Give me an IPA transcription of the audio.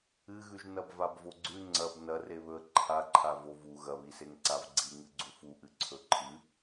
ɨɣʉʒ nɐbvabvoɡ͡ǀʉ ŋ͡ǀɐb nɐreβɵə̯ ǃʰaǃʰa vovu ɣɐβiseŋ ǀavɡ͡ǀi ŋɨɡ͡ǀufuʔɨ ǀʰɵǃʰɨ

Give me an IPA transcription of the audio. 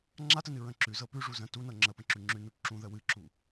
ŋ͡ǁatənɨ ɹə̃ǁʉ zɤpʉʐu zə̃ tunɤ ŋ͡ǁəpə̃ǁʉ ŋ͡ǁʉnu ǁũðə wɨǁu

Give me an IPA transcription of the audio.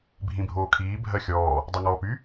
bʱĩbʱoːkʰiː bʱɜxʲɔː | dˤaŋɔːpy

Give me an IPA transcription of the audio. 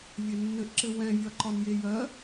vʲɛnːɘʔǁɘ wɛ̃vʲɒǃɒnje jɜ

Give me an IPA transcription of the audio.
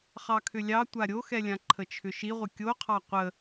χɑkʰʏlʲɑ tʷaɾʲoxɛlʲã ǃʰət͡ʃʰʏʃiʁʷə kʲoqʰɑ qʷə

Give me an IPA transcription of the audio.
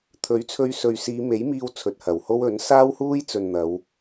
t̪ʰɵ˨˥ɥt͡sʰɵ˧ɥsɵ˨ɥ siː˨˧me˨˥jmiː˧w t͡sʰɵ˨t̚hɐ˨˩who˥w ɵ˨˥n saː˥whuː˥jt͡sɵ˨n n̪ɐ˨˧w

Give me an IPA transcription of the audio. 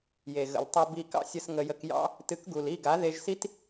je˨ɣə̰˨ltˤʊ˧bi˧ kɑ̰˦sʲə˧s ŋə˧jə˧k jɑ̰˧ | tɨ˨˦kɡu˨li˦˨ɡa˨˦ ðe˧ʒsi˦t

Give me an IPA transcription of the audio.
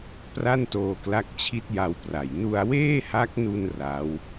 pra˥˩ntoː˧kla˦˥k̚ t͡ɕʰi˦˥t̚ja˧wpra˨˩j nu˧a̯weː˥˩ha˦˥k̚nu˧n ra˦˥w

